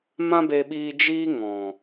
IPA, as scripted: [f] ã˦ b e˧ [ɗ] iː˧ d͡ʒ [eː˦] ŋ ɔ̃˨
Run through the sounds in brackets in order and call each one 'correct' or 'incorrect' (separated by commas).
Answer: incorrect, incorrect, incorrect